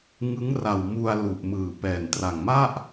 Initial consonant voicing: voiced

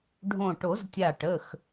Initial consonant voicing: voiced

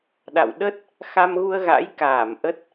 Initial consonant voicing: voiced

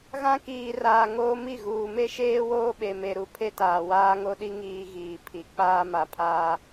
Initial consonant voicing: voiced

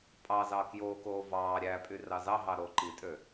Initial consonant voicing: voiceless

